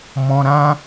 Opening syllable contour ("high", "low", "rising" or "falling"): low